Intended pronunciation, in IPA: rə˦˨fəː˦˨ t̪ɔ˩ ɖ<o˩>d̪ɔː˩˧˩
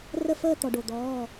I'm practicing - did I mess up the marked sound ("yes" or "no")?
no